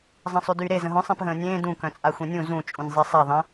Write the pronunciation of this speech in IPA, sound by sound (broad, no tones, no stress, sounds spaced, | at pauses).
zˤ ə̃ː sˤ y d yː ɾ e z ə̃ ɦ œ̃ sˤ ẽ p ɦ ə̃ː nʲ ẽː d ũ k œ̃ t͡sʼ a xʷ ẽ nʲ ũ z ũ t͡ʃʼ ũ nʲ zˤ e sˤ a ðˤ ə̃